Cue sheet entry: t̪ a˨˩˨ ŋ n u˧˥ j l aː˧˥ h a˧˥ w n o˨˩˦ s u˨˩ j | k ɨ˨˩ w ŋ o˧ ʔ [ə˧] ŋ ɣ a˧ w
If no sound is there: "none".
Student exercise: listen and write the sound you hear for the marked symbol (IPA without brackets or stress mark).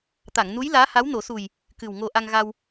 a˧